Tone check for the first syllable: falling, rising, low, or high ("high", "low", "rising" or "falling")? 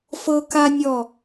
high